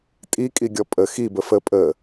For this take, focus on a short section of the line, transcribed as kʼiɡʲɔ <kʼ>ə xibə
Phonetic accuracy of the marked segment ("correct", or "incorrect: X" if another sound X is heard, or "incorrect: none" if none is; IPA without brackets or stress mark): incorrect: pʼ